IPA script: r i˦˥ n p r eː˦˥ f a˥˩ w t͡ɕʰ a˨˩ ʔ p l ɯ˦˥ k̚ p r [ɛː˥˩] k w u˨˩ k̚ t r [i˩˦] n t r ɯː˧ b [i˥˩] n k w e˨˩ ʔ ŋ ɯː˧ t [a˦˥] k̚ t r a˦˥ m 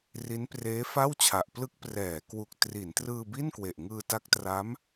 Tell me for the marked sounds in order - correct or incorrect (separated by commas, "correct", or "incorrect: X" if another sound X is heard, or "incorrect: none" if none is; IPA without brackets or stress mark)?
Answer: incorrect: ɛː˩˦, correct, correct, correct